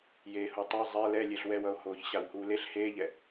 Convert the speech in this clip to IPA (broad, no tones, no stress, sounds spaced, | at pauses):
j eː h u tˤ a zˤ ɛ l ɛ lʲ e ɬ w ɛ w ʌ o̯ h oː ç ɕ a w h uː l e ɬ h eː ʎ ɛ